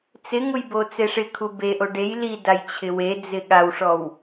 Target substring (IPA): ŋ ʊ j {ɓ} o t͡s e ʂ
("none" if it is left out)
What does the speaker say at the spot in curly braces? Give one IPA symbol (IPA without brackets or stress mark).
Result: b